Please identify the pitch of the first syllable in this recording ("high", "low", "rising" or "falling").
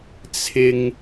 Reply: high